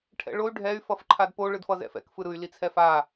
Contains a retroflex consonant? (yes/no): yes